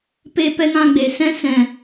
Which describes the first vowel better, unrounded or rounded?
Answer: unrounded